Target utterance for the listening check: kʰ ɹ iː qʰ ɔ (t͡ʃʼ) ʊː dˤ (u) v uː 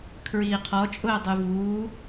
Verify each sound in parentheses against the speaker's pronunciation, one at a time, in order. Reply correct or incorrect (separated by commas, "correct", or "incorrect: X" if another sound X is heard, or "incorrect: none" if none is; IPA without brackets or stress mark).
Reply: correct, incorrect: y